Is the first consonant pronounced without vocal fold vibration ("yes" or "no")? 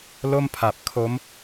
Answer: no